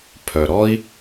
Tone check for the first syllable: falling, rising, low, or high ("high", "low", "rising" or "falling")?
low